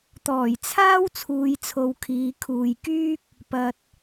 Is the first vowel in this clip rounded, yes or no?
yes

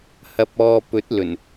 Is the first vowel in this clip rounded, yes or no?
no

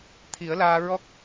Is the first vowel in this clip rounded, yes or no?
no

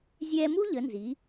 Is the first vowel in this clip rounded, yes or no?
no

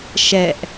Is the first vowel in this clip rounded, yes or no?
no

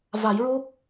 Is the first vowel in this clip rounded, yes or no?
no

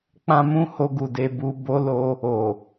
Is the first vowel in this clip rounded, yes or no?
no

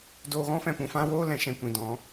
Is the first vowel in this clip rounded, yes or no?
yes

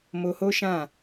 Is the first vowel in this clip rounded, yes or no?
yes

